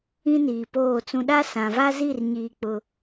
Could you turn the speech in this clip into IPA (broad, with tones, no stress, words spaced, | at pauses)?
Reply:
ĩ˦niː˨poː˦˨t͡sũ˦ ɗa˦sã˨va˦zi˦˨r ɲiː˦k͡pʊ˦